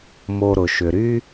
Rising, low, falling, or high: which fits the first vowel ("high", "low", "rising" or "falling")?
low